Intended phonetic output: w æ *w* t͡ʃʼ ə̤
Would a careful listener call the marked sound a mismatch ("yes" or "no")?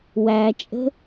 yes